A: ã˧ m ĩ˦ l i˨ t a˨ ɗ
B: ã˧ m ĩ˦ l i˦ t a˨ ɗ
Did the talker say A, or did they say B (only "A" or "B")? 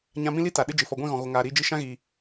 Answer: B